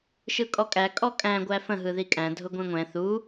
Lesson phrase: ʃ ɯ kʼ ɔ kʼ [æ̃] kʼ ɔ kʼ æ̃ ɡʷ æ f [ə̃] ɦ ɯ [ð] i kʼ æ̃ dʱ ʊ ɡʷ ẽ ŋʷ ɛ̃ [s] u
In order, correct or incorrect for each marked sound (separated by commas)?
incorrect, correct, correct, incorrect